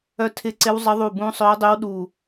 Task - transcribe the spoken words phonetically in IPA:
œ˦˨ tʰ ɪ˦˥ ǀ ɪ˦˥ w zˤ ə˦˥ ðˤ u˦˨ b ũ˦˥ sˤ œ˦˥ dˤ y˦˥ w ɗ u˦˨

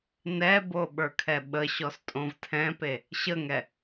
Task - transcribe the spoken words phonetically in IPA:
n ɛ b o ɓ ə˞ kʰ ɛ ɓ ə ɕ ɔ s tʼ õ v tʰ ɛ̃ p e | ɕ ə ŋ ɛ

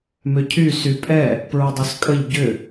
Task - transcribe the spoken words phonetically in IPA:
m ʏ cʰ y s y pʼ ɛ | p ɹ ʊ dˤ y s kʼ ə ʎ ɟ ʏ

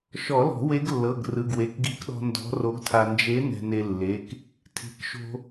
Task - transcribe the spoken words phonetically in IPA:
ʃ ɔ˨˩˦ l ɔ̤˨˩˦ w e˧˥ ɡ lː ɤ˩˧˩ ɡ r ɯ˩˧˩ ɡ w e˩˧˩ k ɡ i˧˥ k ɗ ɔ̤˧ n d ɔ̤˧˥ r o˧˥ ɡ tʰ a˧ n d͡ʒ e˧˥ n ɛ̤˧ n e˧ lː e˩˧˩ k | tʰ i̤˩˧˩ k ʃ o̤˧

